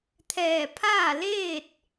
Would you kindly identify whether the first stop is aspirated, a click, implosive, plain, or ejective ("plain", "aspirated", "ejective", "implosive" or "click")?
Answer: aspirated